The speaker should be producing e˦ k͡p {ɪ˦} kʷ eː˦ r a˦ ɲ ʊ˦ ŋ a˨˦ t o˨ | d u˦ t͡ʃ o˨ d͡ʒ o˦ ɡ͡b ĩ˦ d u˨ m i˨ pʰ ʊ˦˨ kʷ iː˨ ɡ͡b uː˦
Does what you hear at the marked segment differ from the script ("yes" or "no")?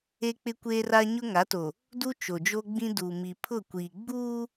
no